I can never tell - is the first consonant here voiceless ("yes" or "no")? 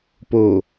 yes